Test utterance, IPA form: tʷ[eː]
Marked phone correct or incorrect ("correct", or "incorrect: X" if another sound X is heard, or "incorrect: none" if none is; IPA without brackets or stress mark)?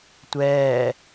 incorrect: ɛː